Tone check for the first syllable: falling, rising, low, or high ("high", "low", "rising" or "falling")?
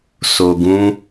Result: low